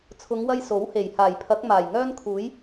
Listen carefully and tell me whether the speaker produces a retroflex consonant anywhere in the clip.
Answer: no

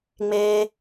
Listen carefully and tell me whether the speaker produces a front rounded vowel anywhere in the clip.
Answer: no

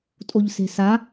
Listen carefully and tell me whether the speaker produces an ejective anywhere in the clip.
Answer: yes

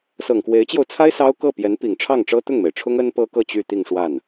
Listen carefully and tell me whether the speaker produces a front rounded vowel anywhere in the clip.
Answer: yes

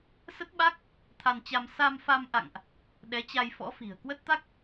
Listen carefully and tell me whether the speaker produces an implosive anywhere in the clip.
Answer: yes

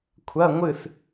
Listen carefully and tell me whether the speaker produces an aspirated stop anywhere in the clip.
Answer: yes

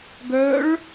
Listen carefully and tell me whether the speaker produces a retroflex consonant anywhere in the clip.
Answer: yes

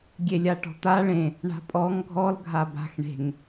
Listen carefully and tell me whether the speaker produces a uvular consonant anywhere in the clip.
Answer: no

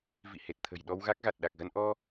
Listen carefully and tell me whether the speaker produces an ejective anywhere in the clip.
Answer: no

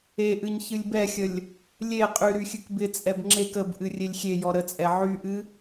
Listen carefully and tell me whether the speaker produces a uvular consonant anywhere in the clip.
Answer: yes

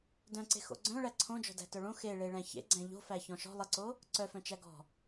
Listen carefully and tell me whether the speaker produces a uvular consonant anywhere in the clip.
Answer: no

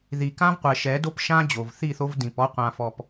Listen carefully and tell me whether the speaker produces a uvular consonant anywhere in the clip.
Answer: yes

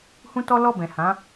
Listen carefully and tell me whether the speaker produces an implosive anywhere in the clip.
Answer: no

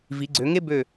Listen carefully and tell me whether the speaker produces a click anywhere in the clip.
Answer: yes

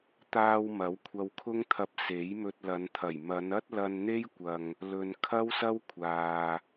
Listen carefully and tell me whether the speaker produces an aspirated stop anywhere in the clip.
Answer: yes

